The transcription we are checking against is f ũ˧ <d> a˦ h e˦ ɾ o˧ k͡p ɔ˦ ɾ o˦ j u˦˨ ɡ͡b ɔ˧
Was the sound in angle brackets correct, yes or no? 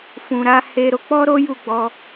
no